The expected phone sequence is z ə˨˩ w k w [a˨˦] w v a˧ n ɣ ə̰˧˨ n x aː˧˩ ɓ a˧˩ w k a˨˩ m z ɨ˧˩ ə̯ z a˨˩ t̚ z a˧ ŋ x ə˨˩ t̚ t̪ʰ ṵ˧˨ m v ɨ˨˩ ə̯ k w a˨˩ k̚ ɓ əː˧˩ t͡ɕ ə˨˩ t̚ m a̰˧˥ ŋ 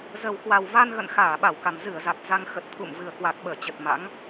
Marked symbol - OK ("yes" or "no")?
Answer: no